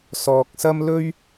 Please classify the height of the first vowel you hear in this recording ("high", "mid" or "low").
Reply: mid